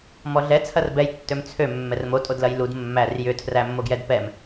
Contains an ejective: yes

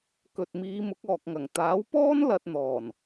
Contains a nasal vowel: no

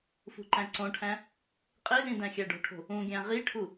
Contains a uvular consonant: yes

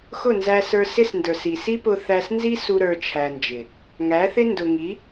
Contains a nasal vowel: no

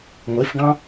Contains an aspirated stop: no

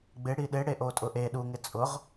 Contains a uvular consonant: yes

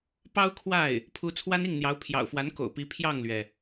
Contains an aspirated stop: yes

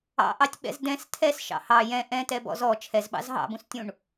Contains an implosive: yes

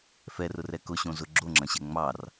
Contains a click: yes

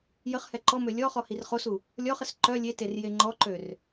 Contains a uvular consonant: yes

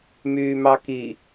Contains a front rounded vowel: yes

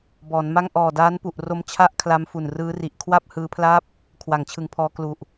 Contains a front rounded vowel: no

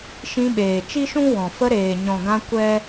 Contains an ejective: no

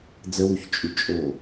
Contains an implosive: no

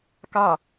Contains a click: no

